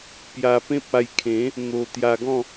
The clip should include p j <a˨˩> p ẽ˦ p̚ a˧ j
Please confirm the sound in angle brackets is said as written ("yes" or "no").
no